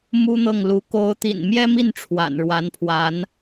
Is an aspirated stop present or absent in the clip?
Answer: present